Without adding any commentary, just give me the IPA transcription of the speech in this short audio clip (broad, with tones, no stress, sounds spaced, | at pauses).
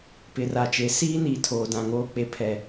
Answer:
p ɪ˨ r a˨ t͡ʃ e˨˦ s iː˦ n iː˨ tʰ oː˨ d ã˨ ŋ oː˦ k͡p e˦ pʰ ɛ˦